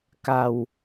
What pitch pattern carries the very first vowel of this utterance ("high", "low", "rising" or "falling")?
low